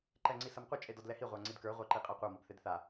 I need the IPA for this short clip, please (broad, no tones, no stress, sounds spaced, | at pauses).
ǃ ɛ ŋ͡ǀ i s ɐ m qʷ ɐ t͡ʃʼ e d ɔ d l ɛ h i ʁʷ a ŋ͡ǀ i d k ə˞ ʁʷ a ǃ i qʼ a qʷ a m ɔ b θ e d θ a